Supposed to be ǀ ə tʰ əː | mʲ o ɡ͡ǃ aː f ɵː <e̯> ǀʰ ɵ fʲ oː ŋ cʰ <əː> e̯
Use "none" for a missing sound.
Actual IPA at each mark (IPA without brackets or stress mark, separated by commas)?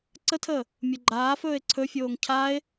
e̯, aː